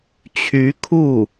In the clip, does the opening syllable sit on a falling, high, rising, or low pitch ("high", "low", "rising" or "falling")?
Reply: rising